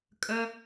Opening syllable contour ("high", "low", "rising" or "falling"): high